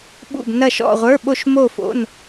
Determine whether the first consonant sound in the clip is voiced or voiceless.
voiced